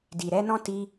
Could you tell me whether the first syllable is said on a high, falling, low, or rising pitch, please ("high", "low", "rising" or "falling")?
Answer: low